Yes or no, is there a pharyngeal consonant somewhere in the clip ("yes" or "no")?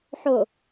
yes